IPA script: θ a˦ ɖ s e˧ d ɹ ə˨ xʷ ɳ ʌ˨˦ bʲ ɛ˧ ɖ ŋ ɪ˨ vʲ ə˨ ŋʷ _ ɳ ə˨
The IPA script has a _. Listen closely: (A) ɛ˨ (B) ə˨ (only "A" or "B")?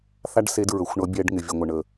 B